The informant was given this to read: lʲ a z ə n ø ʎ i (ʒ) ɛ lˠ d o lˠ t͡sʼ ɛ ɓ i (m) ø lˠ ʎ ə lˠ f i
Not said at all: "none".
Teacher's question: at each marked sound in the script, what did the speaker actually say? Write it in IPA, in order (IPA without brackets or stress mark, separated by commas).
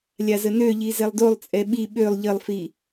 z, ɓ